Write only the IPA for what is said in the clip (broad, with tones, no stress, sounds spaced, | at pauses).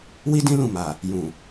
w i˦ d ĩ˦ l ũ˦˨ m a˨ | j ũ˨